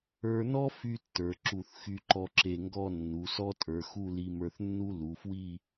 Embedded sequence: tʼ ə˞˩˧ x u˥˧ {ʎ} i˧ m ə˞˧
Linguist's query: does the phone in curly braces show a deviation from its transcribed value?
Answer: yes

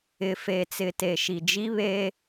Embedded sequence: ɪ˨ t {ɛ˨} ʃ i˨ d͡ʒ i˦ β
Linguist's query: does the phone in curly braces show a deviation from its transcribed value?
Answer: yes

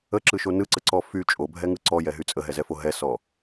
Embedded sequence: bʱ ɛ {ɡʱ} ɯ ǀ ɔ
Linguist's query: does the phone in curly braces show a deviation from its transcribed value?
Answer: yes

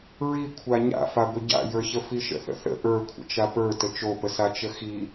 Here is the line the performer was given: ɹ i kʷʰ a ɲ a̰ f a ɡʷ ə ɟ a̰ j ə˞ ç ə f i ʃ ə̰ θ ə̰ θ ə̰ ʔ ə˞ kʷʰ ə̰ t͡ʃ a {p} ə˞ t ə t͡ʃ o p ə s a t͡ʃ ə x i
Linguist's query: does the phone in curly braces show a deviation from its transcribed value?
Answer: no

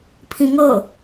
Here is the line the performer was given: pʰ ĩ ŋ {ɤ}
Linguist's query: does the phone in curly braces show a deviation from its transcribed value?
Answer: no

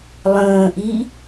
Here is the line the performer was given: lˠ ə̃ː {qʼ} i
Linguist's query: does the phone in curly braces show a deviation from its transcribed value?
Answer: yes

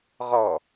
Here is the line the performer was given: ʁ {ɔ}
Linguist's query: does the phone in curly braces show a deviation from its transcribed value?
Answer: no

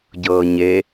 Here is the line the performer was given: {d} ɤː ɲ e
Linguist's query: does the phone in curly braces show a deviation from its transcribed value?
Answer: yes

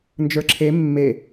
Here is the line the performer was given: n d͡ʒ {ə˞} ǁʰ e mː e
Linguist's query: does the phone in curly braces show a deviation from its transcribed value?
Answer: no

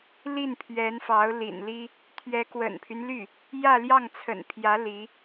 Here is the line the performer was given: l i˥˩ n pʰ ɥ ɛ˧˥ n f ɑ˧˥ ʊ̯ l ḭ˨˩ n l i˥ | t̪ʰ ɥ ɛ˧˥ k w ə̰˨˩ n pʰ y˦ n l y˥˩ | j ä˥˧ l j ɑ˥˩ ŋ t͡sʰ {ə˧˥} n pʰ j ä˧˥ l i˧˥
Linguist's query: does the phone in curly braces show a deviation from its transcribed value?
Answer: yes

